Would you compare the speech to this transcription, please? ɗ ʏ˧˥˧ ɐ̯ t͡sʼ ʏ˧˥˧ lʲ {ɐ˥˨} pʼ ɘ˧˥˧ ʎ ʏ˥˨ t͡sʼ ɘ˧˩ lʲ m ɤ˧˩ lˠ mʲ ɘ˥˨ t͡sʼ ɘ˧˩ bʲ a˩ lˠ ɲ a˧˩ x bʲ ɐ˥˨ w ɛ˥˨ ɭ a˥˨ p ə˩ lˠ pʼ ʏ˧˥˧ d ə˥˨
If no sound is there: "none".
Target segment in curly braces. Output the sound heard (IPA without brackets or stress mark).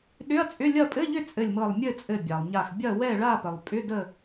ɐ˥˨